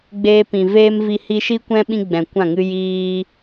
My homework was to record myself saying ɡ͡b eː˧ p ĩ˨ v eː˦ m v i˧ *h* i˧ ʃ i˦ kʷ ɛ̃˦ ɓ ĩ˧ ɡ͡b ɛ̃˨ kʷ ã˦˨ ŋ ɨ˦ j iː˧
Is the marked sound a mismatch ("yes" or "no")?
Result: no